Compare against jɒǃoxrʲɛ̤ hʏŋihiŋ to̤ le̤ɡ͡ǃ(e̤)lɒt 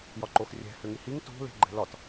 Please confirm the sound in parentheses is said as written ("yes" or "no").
no